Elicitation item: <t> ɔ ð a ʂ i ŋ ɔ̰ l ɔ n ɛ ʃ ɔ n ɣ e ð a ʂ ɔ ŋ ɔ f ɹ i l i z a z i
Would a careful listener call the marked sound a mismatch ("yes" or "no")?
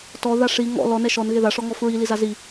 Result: no